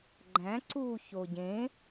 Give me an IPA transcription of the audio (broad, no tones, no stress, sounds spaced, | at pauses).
ɡ͡ǃ æ̃ ǀ uː ç o ɟ ẽ